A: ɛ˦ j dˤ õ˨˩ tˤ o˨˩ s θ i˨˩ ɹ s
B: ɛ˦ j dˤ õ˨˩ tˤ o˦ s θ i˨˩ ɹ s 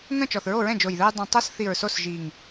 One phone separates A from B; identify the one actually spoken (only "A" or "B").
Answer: B